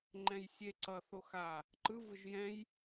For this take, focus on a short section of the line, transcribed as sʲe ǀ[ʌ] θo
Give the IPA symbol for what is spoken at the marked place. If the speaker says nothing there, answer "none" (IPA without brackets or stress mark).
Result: ʌ